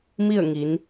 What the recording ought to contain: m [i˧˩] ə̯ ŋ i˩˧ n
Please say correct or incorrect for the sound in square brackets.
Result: incorrect: i˥˨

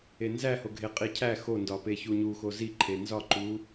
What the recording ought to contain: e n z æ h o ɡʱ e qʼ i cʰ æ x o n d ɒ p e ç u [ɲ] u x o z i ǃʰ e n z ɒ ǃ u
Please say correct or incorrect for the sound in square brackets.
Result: correct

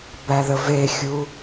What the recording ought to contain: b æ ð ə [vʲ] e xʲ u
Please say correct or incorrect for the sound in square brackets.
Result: incorrect: v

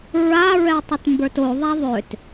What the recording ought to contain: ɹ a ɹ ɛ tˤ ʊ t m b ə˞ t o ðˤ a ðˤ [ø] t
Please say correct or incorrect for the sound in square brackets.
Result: correct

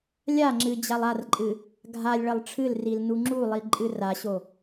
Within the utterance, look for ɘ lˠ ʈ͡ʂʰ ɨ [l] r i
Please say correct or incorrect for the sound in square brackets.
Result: correct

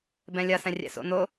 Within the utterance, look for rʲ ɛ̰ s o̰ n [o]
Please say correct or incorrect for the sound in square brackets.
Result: correct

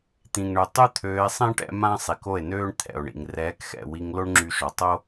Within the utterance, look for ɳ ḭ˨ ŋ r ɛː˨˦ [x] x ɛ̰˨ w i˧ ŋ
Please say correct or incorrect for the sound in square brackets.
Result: incorrect: k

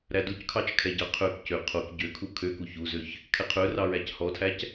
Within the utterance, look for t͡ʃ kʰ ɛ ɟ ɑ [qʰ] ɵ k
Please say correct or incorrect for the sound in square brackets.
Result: correct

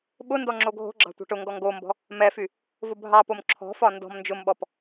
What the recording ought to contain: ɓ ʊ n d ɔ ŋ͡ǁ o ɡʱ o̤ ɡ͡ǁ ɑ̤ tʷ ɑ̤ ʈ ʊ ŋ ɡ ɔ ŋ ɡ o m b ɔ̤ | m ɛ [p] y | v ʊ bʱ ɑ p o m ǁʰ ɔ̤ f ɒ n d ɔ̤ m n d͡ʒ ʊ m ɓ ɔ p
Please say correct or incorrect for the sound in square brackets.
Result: incorrect: f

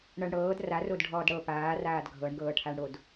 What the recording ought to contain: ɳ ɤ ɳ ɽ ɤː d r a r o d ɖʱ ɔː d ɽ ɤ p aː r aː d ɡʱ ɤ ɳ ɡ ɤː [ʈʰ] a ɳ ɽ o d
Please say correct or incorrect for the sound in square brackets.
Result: correct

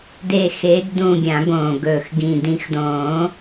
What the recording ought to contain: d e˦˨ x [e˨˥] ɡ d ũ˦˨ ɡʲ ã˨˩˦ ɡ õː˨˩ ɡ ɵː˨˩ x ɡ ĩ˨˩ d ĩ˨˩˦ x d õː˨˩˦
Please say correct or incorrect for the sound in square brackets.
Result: correct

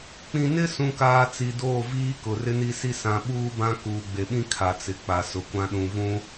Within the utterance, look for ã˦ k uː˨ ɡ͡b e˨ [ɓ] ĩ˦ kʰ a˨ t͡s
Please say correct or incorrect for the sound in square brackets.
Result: correct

